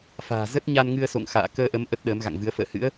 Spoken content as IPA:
f a̤ː˨˩ z ə˦˥ t̚ ɲ a˧ n ŋ ɨ˧ ə̯ s o̰˧˨ ŋ x a̰ː˧˨ k əː˧ ʔ ə˨˦ m ʔ ə˦˥ t̚ ɗ əː˨˦ m ɣ a̰˧˨ ŋ v ɨ˨˦ ə̯ f ə̰ː˧˨ h ɨ̰˧˥ ə̯

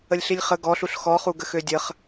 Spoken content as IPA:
ə lʲ ɬ i lʲ χ ə ɡ ɔ ɬ u ɬ x ɔ χ u ɡ ə x ø dʲ ə χ

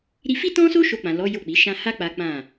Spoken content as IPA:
ɾ i˧ f i˦ t ɔ̃˦ s o˦ ʃ o˧ k͡p ã˨ l ɔ˨˦ j o˦˨ k͡p i˨˦ ʃ ã˦ h a˦ k͡p a˦ k͡p ã˦˨

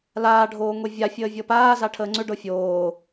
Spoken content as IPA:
l aː ɖʱ oː ŋʷ e vʲ a fʲ əː vʲ ɤ p aː z a ʈʰ əː ŋ͡ǀ ʏ ɖ ɤ fʲ oː

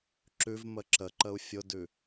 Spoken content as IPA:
ǁ ʉ v m ə ǁ ə ǃ ə u̯ fʲ ʊ d ʉ

